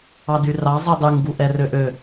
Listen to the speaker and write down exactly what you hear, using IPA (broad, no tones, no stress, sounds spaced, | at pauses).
ɑ d y r ɑ zˤ i dˤ y ŋ ɡ u ʔ ɛ r ø ʔ ø